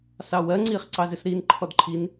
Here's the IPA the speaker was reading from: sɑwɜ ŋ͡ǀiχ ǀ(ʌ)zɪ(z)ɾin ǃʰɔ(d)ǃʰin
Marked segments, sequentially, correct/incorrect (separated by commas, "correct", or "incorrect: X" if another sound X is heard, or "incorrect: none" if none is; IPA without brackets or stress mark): incorrect: ɑ, incorrect: s, correct